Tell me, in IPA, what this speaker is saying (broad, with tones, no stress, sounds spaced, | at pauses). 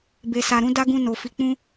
b e˨ s a˨ ɾ ũ˨˦ d a˦ ɡ ũ˧ n o˨ f i˧ k͡p ũ˦